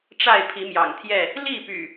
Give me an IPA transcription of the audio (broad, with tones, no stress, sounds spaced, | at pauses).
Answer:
ʈ͡ʂ a˥˨ ɪ̯ pʰ i˨˦ m j ɑ̰˨˩ ŋ t̪ʰ j ɛ˥˨ | l i˥˨ p y̰˨˩